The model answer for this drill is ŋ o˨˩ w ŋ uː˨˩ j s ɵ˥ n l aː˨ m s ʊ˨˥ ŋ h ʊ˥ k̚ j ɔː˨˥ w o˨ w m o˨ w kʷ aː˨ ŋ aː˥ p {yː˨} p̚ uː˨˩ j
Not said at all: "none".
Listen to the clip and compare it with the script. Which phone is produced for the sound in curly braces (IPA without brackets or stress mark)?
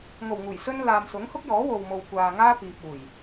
iː˨